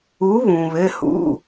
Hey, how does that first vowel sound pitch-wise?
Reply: rising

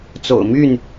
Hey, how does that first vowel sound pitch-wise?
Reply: low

